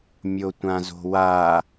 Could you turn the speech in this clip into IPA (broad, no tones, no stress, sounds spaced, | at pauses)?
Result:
mʲ o tʷ ã z o̤ w a